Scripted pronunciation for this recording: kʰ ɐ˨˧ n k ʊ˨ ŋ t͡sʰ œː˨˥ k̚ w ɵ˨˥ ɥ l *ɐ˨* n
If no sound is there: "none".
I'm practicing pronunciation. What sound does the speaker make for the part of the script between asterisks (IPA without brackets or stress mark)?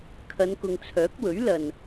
ɐ˨